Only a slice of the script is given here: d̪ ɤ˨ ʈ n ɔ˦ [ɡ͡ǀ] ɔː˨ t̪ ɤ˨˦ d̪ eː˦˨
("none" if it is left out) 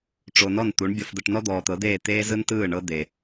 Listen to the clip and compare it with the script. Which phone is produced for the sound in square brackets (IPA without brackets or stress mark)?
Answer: d̪